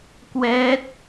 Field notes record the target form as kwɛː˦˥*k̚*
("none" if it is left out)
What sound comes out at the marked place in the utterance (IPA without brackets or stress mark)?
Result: t̚